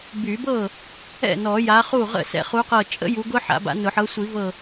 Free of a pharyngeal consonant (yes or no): no